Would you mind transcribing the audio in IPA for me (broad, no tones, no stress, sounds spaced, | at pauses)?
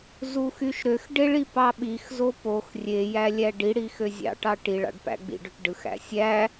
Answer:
z u x y ʃ ɾ ø x ɖ e ɭ i p ɑ ɓ i x z o p o x rʲ e j æ lʲ æ ɖ i ɽ i x ø zʲ ɑ̰ ʈ ɑ ʈ i ɭ ɑ̰ ɖ p æ̰ ɡ͡b ḭ ɖ ø ʈ ɖ ɯ x æ̰ sʲ æ